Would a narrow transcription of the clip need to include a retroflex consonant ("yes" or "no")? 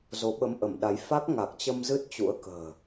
no